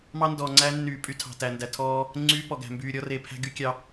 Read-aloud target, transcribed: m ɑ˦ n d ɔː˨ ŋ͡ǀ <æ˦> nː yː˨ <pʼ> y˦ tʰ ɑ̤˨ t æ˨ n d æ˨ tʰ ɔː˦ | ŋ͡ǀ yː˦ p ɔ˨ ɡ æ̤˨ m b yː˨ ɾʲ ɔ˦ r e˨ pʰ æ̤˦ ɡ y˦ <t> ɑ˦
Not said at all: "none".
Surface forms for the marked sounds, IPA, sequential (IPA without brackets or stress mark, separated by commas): æ˦, pʼ, kʲ